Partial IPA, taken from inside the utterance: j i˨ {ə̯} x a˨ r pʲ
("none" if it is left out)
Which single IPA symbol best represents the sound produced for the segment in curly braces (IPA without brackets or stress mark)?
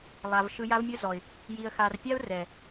ə̯